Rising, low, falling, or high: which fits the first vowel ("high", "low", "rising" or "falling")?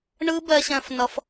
high